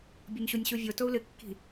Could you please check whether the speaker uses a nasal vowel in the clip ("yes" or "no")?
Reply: no